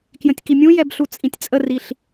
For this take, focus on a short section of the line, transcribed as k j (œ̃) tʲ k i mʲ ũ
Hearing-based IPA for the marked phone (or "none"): ə̃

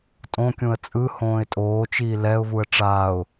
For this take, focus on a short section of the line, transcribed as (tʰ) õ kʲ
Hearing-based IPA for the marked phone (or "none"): tʼ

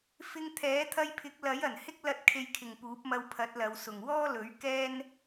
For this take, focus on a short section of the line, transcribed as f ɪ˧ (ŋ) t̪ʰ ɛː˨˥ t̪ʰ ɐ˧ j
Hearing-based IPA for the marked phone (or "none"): ŋ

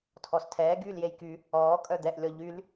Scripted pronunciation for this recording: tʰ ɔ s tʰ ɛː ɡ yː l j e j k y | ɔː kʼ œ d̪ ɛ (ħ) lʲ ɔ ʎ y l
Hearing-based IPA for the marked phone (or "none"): ʔ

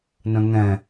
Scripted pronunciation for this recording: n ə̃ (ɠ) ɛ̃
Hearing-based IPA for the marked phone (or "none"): ŋ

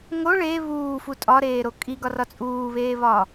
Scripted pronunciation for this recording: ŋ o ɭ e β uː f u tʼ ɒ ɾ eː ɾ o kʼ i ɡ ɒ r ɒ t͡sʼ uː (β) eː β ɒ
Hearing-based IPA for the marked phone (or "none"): β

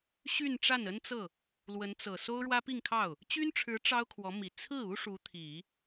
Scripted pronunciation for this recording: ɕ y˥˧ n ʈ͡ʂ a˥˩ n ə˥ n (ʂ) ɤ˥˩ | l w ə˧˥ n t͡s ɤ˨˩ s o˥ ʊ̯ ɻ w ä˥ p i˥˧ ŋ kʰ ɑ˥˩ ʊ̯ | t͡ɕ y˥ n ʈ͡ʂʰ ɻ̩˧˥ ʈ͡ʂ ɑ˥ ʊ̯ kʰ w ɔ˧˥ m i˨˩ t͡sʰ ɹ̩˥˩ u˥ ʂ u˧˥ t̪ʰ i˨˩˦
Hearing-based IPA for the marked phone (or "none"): t͡s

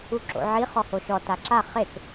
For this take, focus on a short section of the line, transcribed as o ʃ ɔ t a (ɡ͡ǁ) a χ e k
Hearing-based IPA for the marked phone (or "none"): ǁ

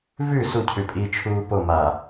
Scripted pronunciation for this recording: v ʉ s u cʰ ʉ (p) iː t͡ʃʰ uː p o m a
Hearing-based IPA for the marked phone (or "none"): pʼ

